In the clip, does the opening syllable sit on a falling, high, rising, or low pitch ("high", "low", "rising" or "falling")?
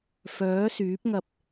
rising